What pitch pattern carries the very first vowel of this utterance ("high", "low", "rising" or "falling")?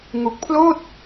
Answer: low